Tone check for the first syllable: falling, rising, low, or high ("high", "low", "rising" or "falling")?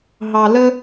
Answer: low